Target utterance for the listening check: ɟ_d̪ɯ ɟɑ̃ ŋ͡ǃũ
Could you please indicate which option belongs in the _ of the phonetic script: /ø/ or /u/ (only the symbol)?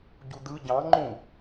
u